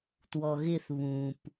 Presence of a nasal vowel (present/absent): present